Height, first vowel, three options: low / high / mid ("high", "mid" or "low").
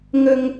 mid